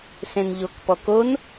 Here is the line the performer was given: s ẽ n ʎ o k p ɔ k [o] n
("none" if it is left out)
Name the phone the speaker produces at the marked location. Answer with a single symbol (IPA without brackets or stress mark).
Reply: o